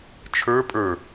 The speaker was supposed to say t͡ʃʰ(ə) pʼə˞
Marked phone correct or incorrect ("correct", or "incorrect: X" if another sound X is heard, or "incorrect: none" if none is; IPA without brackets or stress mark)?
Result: incorrect: ə˞